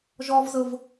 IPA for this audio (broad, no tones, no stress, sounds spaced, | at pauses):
ʒ ɔ v z ɤ v